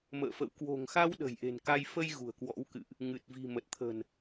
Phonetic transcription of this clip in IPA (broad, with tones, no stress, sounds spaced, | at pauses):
m ə̰ː˧˨ f ə̰˧˨ w k w o̤˨˩ ŋ x a˧ w ɗ ə̤˨˩ j ʔ e̤˨˩ n k a˧ j f ə˧ j ɣ ṳ˨˩ ə̯ k w ɔ̰˧˥ w k ɨ̰˧˨ ʔ | ŋ ɨ˨˩ t̚ v i̤˨˩ m ə˨˩ t̚ t̪ʰ ə̤˨˩ n